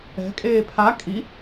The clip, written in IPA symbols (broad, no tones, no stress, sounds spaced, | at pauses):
ɛ̤ kʼ eː pʰ a kʼ i